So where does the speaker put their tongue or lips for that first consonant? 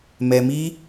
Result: lips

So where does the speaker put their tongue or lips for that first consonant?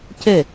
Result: palate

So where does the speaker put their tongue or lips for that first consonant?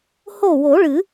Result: throat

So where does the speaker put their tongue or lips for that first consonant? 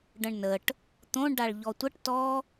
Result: retroflex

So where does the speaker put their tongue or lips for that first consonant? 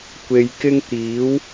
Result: velum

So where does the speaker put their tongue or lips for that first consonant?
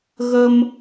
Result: velum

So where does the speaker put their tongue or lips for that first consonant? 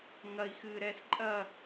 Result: velum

